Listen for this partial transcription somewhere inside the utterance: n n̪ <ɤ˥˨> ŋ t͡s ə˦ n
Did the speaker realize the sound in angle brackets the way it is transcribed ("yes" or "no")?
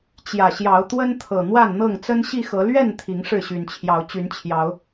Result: yes